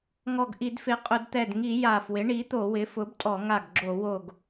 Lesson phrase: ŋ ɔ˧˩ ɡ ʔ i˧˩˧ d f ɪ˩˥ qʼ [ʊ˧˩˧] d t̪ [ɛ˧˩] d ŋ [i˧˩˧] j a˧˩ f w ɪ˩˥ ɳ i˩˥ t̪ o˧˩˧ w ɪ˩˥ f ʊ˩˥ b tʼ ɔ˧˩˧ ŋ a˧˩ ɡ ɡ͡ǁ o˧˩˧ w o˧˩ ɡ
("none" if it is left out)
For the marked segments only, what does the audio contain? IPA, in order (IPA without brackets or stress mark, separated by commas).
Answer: ʊ˧˩˧, ɛ˧˩, i˧˩˧